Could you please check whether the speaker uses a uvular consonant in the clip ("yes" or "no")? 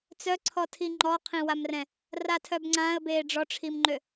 yes